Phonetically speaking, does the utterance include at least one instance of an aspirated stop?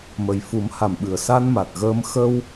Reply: no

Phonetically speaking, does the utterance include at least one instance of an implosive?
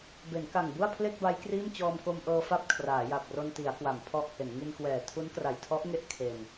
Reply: no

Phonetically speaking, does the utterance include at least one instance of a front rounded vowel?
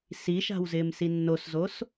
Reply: no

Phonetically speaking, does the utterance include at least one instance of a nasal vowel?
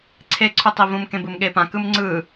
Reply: yes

